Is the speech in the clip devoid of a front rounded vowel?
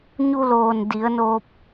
yes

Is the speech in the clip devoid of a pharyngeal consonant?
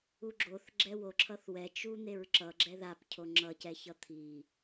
yes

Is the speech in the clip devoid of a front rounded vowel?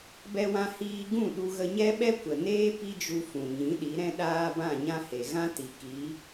yes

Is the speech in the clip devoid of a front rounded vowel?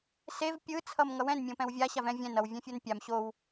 yes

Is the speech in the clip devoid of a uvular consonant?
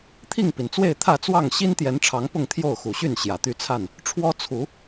yes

